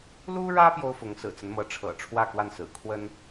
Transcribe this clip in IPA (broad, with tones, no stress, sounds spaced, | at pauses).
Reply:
l u˥ ɻ ä˥ p j o˥ ʊ̯ f ʊ˧˥ ŋ s ɹ̩˨˩ t͡s ə˦ n m ɤ˧˥ ʈ͡ʂʰ ɤ̰˨˩ ʈ͡ʂʰ w ä˥˧ k w a˥˩ n s ɹ̩˨˩ kʰ w ə˥ n